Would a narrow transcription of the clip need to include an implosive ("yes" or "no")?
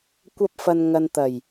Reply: no